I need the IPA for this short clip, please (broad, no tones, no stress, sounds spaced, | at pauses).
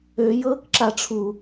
ø j ɤː k ǁ a ʈ͡ʂʰ u